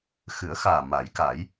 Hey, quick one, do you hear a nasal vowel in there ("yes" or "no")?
no